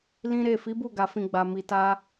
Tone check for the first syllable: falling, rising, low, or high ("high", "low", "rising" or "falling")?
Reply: high